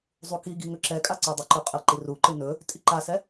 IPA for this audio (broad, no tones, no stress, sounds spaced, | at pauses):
zˤ u k i ɡ i ŋ ɵ ǁ ɛ kʼ a ǀ ɵ dˤ u ǃ ɵ qʼ ə ǃ i r u ǃ ɯ n ɵ | tʼ i ǃ a s ɛ